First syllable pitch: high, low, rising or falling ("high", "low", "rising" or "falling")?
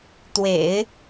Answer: low